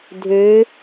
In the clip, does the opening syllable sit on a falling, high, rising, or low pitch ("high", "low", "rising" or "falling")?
rising